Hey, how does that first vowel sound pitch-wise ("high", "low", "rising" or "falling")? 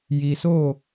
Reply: low